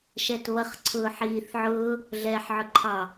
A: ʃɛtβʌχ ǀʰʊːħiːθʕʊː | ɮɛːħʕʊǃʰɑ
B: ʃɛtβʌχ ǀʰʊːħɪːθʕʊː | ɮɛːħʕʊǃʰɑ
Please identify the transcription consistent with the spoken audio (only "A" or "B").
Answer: A